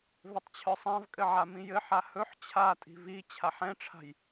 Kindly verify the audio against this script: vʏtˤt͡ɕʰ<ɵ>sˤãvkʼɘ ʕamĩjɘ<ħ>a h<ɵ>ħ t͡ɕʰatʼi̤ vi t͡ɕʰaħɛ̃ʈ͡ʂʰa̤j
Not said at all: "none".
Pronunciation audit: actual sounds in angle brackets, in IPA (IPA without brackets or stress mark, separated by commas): œ, ħ, ɵ